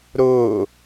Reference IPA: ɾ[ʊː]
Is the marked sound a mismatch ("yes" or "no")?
no